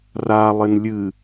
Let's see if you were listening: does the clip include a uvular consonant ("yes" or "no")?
no